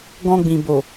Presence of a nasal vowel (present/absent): present